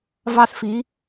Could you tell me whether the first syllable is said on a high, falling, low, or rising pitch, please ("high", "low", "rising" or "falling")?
high